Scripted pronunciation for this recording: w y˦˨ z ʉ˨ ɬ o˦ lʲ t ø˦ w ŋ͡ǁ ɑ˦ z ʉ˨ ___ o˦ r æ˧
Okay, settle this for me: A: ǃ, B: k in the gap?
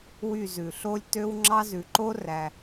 A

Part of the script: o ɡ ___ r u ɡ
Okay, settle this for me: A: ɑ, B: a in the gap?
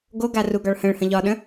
B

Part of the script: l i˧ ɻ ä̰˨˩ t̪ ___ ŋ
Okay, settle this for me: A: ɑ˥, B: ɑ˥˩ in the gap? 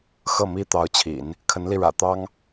A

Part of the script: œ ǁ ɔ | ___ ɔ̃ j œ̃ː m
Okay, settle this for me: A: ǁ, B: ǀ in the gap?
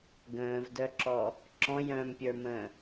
A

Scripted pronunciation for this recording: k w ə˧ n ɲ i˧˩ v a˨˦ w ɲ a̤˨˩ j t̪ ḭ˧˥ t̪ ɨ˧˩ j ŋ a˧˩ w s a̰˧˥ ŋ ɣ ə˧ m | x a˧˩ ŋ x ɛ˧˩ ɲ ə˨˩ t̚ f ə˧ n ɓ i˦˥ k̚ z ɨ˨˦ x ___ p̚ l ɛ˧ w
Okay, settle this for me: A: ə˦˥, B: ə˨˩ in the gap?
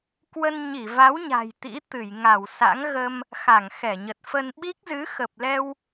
B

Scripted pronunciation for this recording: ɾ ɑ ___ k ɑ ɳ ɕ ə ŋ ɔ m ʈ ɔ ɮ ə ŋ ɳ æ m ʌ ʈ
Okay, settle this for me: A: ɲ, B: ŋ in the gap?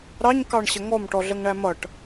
A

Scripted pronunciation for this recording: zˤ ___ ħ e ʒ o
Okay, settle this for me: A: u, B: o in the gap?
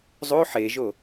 B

